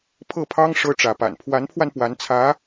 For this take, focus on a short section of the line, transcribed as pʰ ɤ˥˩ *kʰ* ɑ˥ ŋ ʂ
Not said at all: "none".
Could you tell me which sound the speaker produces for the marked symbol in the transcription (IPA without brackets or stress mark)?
pʰ